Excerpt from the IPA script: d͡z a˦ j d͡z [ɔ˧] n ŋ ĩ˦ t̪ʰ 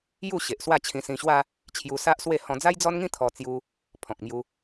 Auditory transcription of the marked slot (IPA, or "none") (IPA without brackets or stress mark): ɔ˦